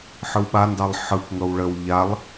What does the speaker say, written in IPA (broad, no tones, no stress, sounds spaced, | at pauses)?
ħ ɯ w ɓ a n d ɑ lˠ ħ ɯ k ŋ ɤ w ɭ ə w ʎ a lˠ